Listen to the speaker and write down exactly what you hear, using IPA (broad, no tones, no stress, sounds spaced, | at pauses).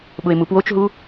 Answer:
ɓ ʊ e̯ m u p w o t͡ʃ ɦ u